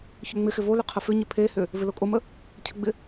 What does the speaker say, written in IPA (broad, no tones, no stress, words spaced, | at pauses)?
çʏŋ͡mɪxɪ volʏ qʰəfʏɲɪ pʰehʏ | vɪlokʼomə | cʰəɡ͡bɪ